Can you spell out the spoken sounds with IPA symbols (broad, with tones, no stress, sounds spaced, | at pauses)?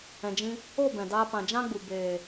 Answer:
ɛ̃˨ d͡ʒ ĩ˧ | o˦˨ b ɛ̃˨ d aː˧ p ã˨ d͡ʒ ã˦ ɡ͡b u˨ b eː˨